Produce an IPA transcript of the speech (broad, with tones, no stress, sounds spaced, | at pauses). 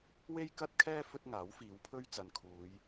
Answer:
w e˥ j k ɐ˥ t̚ kʰ ɛː˥ f ɵ˥ t̚ ŋ aː˨˥ w f iː˨˧ w pʰ ɵ˥ ɥ t͡s ɐ˨ n kʰ uː˨˧ j